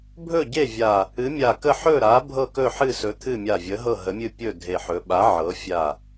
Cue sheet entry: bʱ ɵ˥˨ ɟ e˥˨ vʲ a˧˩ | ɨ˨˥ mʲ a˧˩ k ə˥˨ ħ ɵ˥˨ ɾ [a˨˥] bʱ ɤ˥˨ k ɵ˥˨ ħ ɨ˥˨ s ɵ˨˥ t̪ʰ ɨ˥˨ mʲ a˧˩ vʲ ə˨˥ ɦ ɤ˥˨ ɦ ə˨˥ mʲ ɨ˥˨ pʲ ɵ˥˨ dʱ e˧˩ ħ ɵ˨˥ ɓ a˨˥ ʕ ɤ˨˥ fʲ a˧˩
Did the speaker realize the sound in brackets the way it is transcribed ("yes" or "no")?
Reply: yes